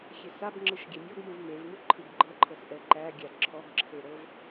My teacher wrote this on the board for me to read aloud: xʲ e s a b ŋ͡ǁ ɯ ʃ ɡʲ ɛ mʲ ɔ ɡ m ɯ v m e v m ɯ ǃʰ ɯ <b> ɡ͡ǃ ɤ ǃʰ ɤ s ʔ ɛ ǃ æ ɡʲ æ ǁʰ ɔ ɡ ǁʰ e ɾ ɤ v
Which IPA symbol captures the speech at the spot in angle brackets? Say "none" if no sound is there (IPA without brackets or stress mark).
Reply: b